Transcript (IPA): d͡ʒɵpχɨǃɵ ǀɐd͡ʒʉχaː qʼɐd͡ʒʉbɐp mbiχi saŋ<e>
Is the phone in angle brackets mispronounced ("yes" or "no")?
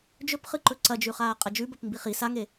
no